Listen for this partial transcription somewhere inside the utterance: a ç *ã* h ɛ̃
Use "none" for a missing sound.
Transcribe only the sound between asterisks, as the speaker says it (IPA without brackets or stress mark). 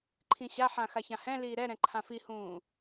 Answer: ã